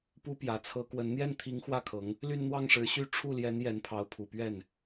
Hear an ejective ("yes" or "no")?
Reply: no